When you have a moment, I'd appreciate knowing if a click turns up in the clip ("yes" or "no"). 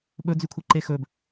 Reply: yes